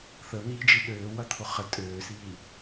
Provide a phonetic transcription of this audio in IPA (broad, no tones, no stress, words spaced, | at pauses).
θən̪iːd͡ʒi ɗøː wɐt̪ʰʊχə tʼøːsiː